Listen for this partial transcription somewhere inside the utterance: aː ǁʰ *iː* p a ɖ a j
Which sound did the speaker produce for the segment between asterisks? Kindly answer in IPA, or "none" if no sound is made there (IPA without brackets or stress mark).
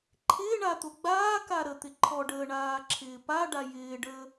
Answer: ɪː